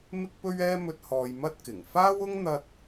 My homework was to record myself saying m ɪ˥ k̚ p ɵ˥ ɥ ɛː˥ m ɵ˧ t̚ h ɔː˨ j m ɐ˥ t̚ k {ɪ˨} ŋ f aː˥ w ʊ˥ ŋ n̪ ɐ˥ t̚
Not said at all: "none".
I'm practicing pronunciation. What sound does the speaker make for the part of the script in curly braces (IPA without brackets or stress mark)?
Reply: ɪ˨˩